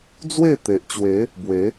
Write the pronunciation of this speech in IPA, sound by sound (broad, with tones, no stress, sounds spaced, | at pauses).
d͡z w e˥˧ t̪ e˨ ʔ t͡ɕ w e˨˦ | b w e˨˦